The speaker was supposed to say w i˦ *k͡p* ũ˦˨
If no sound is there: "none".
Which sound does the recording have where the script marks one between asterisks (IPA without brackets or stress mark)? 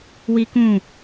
k